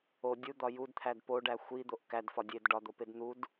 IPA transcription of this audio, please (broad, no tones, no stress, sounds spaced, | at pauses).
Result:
o dʲ u d̪ ɒ j u d t̪ʰ æ d p o ɖ æ xʷ i d̪ o ʔ k æ d f ɒ dʲ e d ɖ ɒ d̪ o p e d n̪ u d